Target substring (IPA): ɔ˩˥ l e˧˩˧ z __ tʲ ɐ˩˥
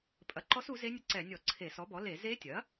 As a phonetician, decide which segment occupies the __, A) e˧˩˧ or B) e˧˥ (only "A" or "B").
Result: B